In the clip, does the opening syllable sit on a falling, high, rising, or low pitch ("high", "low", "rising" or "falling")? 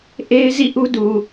high